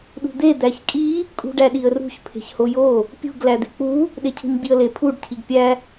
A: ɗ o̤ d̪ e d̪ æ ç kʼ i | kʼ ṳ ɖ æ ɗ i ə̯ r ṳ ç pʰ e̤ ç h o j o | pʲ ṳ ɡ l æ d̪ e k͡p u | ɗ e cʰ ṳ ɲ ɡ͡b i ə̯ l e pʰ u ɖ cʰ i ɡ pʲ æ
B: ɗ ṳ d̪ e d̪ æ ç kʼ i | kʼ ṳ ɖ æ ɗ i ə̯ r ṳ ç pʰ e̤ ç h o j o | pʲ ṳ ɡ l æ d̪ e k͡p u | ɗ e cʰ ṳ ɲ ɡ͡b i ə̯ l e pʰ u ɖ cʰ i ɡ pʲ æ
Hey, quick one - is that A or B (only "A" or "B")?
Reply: B